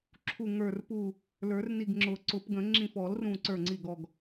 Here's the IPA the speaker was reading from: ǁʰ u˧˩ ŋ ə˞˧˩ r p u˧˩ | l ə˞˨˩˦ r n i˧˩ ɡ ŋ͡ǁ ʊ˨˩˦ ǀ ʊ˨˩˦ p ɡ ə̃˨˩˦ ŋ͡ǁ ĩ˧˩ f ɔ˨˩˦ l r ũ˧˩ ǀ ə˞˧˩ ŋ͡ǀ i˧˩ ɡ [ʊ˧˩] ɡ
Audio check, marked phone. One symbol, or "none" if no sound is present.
ɔ˧˩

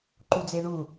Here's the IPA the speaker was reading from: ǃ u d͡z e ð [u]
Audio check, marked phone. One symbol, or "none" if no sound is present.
u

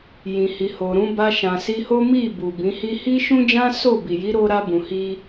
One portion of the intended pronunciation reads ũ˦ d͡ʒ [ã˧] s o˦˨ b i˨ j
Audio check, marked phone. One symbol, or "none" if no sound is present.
ã˦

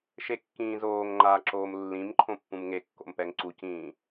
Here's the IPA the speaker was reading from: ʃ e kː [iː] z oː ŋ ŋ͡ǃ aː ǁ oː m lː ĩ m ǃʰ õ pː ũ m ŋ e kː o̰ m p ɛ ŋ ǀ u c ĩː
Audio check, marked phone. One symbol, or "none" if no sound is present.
ĩː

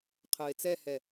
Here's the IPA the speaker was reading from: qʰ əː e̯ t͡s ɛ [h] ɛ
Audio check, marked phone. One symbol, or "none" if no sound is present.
h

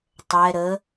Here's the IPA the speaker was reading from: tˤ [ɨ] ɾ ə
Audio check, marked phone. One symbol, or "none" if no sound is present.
ɛ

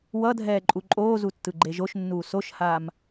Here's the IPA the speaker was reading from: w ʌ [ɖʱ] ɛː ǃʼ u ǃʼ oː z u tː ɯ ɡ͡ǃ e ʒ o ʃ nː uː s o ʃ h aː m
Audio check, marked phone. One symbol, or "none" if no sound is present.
dʱ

